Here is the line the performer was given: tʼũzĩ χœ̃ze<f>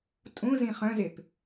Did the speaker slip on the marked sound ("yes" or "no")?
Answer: yes